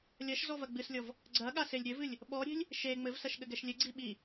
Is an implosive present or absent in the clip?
present